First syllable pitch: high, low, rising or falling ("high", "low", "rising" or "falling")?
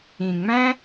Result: low